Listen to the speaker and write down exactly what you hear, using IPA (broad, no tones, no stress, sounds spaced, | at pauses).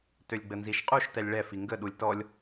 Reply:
t ø lʲ ɡ͡b ə n z i ʃ qʼ u ʃ t ɛ lʲ ɭ ɛ f i ŋ ɡ ə ɗ u lʲ t ɔ lʲ